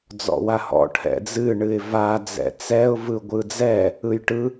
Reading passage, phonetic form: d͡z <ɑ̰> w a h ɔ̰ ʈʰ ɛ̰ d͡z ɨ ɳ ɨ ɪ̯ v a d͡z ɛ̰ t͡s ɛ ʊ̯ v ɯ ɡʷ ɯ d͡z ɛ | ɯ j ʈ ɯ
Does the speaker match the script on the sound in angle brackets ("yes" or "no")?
no